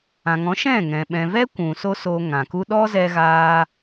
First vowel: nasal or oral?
nasal